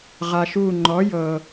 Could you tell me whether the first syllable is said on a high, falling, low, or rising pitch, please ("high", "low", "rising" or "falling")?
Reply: low